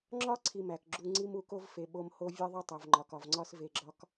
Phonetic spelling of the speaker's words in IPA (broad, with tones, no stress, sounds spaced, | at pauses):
ŋ͡ǁ ɒ˥ ǀʰ i˧ m æ˩ k ɡ͡ǁ u˧ ŋ͡ǀ i˥ m u˩ k o˥ v f e˩ ɓ o˧ m h o˥ vʲ e˥ ðˤ e˥ tˤ o˩ v ŋ͡ǃ ɒ˩ k ɒ˩ v ŋ͡ǀ ɒ˧ s v e˧ ɡ͡ǁ ɒ˥ k